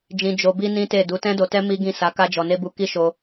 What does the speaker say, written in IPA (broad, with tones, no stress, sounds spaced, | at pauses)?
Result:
d͡ʒ ĩ˧ d͡ʒ o˧ b i˦ n ĩ˦ t e˦˨ d u˨˦ t ɛ̃˦ d o˧ t ɛ˦ m i˦ ɡ ĩ˦˨ s a˨˦ k a˦ d͡ʒ ɔ˧ n e˦ b u˧ k i˦ ʃ o˧